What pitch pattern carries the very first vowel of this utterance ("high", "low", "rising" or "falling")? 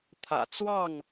low